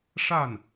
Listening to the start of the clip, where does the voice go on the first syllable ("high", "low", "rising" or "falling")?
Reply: falling